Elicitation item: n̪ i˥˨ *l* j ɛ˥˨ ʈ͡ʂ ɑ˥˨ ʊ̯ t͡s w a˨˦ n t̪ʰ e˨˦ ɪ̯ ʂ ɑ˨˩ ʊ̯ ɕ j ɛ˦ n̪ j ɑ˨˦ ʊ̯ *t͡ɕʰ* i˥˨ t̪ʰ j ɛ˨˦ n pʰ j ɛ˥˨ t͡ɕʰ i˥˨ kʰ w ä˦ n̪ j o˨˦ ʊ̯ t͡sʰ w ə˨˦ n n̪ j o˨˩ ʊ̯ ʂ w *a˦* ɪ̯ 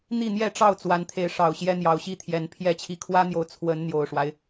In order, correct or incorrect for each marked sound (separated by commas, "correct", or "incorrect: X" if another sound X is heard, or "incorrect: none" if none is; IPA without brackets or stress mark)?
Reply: incorrect: n̪, incorrect: ɕ, correct